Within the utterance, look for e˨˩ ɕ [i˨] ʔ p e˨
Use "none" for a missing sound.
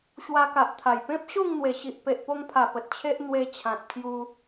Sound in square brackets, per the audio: i˨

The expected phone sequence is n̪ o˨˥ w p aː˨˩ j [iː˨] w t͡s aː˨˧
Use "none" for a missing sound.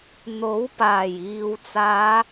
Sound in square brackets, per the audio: iː˨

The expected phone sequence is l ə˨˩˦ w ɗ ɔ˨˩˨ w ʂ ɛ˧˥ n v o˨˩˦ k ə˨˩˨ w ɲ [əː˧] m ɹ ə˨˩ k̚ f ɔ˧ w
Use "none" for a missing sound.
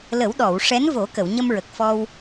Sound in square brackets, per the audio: ə˧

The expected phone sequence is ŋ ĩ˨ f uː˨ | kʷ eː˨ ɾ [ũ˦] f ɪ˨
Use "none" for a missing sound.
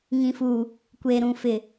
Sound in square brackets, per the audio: ũ˨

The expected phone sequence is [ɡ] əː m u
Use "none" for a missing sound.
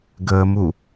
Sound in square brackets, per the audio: ɡ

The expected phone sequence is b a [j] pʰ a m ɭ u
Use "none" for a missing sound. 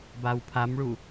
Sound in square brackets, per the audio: w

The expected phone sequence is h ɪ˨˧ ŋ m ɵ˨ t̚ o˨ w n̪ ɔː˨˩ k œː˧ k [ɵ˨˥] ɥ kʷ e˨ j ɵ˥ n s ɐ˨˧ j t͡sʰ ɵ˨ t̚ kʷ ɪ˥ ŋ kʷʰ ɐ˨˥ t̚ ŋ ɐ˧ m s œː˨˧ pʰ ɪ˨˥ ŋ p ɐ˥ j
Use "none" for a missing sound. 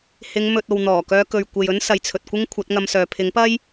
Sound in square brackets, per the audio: ɵ˨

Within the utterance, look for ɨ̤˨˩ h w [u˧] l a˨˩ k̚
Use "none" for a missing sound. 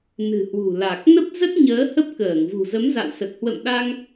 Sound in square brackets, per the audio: ṳ˨˩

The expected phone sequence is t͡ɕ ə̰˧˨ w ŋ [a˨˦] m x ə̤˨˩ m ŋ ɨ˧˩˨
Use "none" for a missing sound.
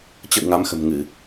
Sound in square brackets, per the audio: a˨˦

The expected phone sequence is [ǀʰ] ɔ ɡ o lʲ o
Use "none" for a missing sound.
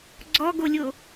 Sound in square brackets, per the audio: ɡ͡ǀ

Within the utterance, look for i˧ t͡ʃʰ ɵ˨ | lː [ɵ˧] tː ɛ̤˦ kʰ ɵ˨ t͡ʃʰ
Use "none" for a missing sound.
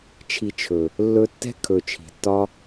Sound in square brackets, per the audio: ɵ˧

